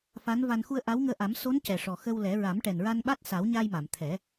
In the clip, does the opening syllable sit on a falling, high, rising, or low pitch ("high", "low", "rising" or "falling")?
rising